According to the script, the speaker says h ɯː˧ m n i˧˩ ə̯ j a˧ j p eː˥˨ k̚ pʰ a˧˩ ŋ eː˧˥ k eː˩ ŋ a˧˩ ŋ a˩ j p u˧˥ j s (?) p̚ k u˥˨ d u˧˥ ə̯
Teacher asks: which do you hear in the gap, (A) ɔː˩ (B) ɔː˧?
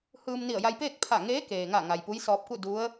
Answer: B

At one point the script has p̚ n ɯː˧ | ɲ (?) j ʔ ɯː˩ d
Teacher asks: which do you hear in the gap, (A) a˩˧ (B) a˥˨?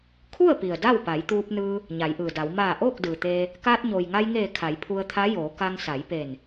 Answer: A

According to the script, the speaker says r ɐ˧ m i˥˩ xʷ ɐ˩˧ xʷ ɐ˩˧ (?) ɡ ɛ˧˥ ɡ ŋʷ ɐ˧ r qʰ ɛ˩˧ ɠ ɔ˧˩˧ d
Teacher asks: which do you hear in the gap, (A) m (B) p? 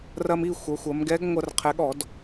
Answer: A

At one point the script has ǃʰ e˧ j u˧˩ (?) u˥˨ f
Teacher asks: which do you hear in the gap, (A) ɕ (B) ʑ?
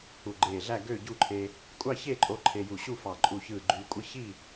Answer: A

